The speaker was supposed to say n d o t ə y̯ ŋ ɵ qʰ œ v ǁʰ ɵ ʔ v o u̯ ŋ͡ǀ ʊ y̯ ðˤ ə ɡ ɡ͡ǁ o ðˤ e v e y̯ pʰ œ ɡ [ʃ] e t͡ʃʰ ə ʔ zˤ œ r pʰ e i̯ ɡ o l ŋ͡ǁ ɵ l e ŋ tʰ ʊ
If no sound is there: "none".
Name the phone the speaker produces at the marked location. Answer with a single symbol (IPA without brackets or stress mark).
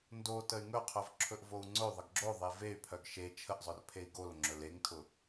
ʃ